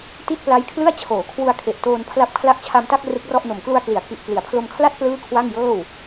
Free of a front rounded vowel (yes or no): yes